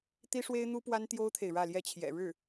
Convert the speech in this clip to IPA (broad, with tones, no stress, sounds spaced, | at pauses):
t̪ i˥ ʂ w e˥ ɪ̯ n̪ u˥ p w a˥ n t̪ j o˥ ʊ̯ t̪ʰ e˨ ɪ̯ ɻ ä˥˧ l j ɛ˥˩ t͡ɕʰ j ɛ̰˨˩ ɻ ɻ̩˥˩